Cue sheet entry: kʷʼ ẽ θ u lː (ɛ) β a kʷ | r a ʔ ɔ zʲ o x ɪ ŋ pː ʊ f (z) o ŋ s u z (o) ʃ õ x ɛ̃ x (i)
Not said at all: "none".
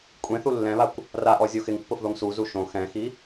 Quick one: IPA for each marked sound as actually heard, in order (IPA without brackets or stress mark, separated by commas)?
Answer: ɛ̃, ð, u, i